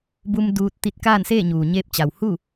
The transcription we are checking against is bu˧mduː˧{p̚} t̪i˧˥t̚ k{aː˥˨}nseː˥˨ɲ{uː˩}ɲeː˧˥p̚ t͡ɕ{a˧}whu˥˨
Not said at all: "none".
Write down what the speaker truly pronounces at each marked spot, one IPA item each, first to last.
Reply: t̚, aː˥˨, uː˩, a˩

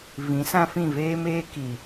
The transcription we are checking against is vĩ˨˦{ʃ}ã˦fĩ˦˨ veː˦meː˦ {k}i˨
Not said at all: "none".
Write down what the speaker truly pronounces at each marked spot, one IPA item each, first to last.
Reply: s, k

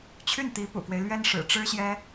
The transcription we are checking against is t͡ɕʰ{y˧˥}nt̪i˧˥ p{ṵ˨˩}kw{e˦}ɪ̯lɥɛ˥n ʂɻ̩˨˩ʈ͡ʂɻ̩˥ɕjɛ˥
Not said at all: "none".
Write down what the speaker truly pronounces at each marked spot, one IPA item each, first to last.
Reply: y˥˩, ṵ˨˩, e˦

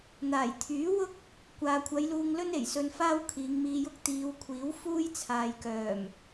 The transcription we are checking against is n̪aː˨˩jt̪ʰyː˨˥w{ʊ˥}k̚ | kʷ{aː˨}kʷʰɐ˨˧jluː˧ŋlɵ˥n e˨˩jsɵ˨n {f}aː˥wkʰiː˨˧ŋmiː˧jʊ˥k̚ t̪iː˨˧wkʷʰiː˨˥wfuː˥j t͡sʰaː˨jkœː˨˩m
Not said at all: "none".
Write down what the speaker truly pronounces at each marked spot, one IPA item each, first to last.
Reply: ʊ˥, aː˨, f

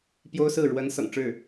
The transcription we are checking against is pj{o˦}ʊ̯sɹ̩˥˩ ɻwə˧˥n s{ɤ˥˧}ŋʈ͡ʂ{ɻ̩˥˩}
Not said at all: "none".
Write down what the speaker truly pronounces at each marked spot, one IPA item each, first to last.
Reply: o˥, ɤ̰˨˩, ɻ̩˥˩

